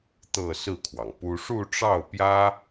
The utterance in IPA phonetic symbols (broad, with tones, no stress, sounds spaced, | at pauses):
t̪ ɤ˥˧ s ɹ̩˥˩ kʰ w ɑ˩ ŋ p u˥ ʂ u˥˧ ʈ͡ʂ ɑ˥˩ ʊ̯ p j ä˥